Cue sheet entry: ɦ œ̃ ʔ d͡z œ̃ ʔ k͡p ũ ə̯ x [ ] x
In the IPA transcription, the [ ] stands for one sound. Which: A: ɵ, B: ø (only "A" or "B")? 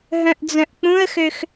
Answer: B